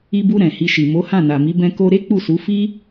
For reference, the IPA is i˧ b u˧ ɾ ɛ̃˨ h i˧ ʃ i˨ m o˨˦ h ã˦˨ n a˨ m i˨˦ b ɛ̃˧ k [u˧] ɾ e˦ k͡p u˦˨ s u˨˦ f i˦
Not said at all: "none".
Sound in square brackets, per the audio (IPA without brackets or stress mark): o˧